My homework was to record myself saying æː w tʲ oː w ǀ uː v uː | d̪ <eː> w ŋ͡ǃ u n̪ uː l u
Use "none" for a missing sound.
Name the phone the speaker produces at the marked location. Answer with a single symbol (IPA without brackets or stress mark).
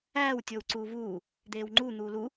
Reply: eː